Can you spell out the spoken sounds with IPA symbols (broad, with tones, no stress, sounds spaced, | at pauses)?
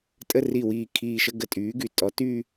tʼ ə˥˧ r i˧˩ w iː˧˩ kʰ iː˧˩ ʃ ə˥˧ ɡ ə˧˩ tʼ yː˩˥ ɡ y˩ tʼ ɔ˩˥ t yː˥˧